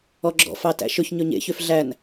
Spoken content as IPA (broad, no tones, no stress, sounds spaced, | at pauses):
ɔ ɡ͡ǁ ɔ̰ f ɑ t æ̰ ʃ ɵ ç ɲ ɵ ɲ ḛ ç ø f ɮ æ n